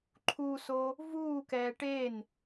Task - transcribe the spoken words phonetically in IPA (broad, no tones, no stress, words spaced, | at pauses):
ǃʰuso | vuːkɛː ʈen